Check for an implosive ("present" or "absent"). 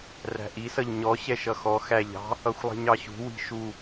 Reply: absent